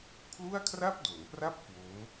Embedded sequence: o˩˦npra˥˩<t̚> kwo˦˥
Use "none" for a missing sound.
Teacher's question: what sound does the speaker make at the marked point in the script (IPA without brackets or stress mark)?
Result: p̚